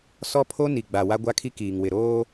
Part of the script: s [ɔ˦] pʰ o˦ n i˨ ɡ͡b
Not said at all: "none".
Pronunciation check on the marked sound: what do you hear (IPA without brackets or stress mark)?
ɔ˦